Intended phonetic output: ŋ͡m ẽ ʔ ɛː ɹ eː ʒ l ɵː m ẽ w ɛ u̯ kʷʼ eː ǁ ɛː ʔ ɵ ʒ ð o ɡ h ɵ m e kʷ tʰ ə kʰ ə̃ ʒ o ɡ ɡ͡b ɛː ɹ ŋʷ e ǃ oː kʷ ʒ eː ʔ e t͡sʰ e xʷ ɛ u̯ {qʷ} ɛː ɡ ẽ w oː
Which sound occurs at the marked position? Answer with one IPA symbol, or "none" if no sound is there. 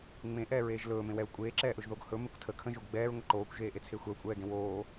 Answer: kʷʼ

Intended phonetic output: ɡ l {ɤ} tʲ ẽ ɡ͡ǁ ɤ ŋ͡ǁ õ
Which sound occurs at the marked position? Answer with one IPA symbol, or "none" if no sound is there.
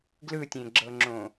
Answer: ɯ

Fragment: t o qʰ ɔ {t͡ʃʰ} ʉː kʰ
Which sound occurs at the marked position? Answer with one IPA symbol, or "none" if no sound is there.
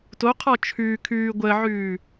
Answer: t͡ʃʰ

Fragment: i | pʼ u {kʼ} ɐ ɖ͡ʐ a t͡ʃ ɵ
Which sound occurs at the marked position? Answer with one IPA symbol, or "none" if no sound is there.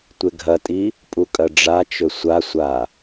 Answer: kʼ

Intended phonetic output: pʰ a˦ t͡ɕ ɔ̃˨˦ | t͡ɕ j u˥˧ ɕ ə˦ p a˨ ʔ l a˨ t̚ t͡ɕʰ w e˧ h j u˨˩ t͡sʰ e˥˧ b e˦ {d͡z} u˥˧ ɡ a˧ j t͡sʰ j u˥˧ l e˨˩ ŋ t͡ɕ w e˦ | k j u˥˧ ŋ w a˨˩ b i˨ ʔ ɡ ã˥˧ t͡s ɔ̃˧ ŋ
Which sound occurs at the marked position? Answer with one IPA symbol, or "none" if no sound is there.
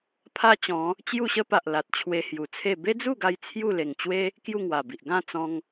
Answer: d͡z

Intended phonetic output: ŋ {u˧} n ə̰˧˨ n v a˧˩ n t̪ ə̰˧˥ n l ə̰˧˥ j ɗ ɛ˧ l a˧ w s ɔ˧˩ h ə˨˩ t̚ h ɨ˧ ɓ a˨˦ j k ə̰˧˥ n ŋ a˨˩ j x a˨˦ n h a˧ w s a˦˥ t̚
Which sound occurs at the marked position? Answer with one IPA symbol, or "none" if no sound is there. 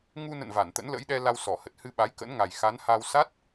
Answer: u˧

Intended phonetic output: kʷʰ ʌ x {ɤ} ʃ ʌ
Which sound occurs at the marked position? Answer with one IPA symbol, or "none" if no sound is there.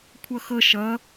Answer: ɤ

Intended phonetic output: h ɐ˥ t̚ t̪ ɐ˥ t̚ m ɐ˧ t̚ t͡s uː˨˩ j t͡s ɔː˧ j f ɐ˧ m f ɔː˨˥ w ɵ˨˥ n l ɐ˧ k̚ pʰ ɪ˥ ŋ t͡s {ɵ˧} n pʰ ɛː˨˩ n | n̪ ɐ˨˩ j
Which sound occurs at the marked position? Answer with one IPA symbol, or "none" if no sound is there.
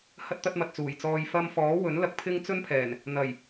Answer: ɵ˥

